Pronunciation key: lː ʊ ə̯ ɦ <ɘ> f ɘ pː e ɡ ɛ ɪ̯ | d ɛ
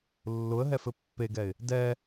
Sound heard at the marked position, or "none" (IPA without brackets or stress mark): ɛ